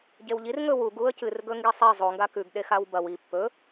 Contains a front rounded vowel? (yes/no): no